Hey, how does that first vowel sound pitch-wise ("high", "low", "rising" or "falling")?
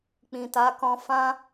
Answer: low